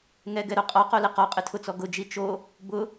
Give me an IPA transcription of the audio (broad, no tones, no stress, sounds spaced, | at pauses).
ŋ ɛ ɡ ɛ ɾ o qʼ ɔ q o l ɪ q ɔ qʼ ɪ tʰ ʊ t͡s ɔ ɡ ʊ d͡ʒ i t͡ʃ o | b ʊ